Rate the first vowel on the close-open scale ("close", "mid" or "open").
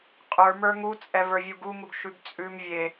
mid